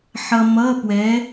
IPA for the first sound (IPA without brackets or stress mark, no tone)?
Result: ħ